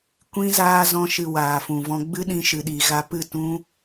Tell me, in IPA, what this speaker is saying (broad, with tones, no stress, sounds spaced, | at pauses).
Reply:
kʷ ĩ˦ z aː˧ z ɔ̃˧ ʃ ɨ˨ w aː˨ f ũ˨ v ɔ̃˧ ɡ͡b ɨ˦ ɗ ĩ˧ ʃ ɨ˨ ɗ i˨ ɣ a˧ p ɨ˦˨ t ũ˦